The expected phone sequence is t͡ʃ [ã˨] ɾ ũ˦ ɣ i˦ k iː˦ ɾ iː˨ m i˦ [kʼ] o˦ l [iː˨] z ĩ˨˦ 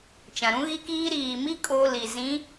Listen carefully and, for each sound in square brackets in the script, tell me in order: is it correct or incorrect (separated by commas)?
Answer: correct, correct, incorrect